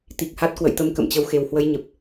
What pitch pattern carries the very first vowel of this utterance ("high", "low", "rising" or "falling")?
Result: low